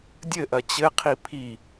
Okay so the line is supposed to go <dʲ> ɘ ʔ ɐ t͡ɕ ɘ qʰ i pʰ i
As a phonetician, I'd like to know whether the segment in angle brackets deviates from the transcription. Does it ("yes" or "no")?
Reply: no